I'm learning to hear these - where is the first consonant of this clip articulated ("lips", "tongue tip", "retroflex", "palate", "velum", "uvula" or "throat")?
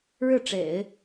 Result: retroflex